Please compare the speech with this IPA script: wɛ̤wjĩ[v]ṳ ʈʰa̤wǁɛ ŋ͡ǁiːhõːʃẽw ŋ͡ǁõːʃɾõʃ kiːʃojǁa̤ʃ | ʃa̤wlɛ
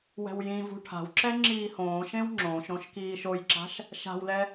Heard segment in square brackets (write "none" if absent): v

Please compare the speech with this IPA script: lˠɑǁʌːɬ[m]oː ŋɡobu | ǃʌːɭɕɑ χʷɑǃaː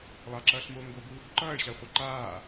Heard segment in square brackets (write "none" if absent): m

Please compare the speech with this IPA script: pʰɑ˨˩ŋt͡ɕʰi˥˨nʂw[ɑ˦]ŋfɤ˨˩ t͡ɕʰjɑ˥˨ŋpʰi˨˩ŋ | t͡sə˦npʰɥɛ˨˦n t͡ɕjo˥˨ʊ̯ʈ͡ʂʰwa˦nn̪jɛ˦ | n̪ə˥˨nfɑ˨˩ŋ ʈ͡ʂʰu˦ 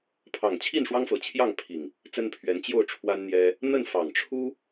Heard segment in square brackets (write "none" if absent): ɑ˦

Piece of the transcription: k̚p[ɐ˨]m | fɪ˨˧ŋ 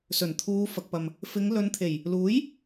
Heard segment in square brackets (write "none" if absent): ɐ˨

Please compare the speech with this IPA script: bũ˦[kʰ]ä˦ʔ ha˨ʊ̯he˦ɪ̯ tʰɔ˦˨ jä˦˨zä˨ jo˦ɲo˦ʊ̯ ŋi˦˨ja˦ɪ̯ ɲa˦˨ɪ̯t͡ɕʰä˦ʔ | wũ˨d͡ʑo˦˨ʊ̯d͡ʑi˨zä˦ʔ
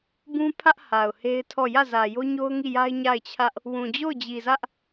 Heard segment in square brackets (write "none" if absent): pʰ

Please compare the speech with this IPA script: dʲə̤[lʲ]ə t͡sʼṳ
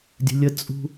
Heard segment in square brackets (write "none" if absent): lʲ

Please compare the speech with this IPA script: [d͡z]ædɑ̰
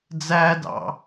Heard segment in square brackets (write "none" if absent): d͡z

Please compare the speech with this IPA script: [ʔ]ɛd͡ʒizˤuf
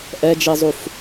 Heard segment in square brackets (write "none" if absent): ʔ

